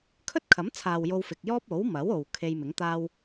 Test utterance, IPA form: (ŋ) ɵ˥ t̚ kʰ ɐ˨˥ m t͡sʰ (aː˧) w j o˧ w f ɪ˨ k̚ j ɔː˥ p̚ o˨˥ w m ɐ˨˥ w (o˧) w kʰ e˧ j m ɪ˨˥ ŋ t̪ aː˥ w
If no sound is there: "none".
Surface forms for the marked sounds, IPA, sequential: kʰ, aː˨, o˨

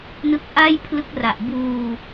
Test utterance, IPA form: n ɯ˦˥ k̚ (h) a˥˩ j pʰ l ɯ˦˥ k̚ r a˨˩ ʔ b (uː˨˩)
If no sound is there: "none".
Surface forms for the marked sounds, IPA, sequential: ʔ, uː˧

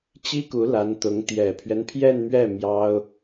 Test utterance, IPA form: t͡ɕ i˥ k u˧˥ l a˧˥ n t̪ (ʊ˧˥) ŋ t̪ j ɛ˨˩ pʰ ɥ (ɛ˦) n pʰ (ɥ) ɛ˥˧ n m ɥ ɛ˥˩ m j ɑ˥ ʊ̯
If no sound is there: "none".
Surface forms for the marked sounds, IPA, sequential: ʊ˧˥, ɛ˦, j

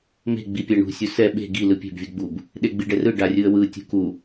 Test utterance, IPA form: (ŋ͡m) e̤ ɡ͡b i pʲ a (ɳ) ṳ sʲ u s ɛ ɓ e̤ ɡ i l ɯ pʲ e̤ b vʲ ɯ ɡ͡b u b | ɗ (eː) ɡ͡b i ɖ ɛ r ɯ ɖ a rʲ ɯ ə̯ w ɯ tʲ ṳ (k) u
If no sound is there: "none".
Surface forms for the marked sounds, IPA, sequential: m, ɳ, e, k

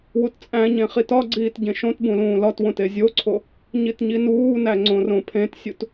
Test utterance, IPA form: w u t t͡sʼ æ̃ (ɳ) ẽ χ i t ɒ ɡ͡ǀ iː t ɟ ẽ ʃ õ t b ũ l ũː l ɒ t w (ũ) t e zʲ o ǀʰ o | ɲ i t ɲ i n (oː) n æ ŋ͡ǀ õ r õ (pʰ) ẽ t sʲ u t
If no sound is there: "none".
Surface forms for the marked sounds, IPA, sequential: ɲ, õ, uː, pʰ

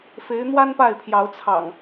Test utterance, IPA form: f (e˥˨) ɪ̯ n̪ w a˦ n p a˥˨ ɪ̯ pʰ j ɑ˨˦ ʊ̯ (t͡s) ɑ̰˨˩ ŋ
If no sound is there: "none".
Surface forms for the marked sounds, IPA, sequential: e˨˦, t͡sʰ

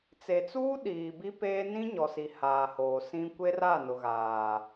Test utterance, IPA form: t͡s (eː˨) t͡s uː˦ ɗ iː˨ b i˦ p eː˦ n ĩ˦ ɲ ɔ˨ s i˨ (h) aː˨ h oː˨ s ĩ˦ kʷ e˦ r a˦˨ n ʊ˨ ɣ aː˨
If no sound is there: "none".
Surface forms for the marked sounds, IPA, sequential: e˨, h

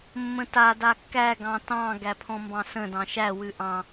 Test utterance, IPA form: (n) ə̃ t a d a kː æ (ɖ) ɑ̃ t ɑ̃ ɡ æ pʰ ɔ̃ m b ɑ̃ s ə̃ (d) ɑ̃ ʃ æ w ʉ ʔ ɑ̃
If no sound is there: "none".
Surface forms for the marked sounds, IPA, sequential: mː, ɡ, d

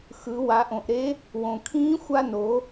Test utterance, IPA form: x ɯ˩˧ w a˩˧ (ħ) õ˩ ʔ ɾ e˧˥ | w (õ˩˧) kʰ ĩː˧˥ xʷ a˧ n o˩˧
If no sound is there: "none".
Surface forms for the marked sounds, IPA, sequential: ʔ, õ˩

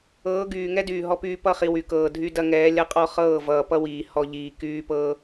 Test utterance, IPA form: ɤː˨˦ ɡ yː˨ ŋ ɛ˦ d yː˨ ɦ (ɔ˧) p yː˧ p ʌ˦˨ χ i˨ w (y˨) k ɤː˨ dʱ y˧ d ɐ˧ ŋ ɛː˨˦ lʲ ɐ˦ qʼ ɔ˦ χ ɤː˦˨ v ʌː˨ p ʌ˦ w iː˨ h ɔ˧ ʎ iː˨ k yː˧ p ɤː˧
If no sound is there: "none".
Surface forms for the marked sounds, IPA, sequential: ɔ˧, y˨

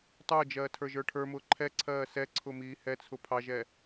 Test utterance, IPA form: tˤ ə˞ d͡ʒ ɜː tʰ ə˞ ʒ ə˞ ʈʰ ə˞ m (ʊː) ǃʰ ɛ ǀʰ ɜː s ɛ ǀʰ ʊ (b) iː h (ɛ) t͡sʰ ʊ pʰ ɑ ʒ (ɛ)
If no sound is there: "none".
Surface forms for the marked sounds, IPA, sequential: ʊː, m, ɛ, ɛ

